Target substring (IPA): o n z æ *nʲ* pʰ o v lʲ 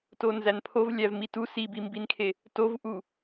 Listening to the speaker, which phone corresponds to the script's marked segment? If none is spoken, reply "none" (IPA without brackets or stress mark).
n